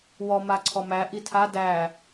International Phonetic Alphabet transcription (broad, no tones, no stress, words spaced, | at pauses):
wɔma ǀʰɔmæ ʔitʰa dæ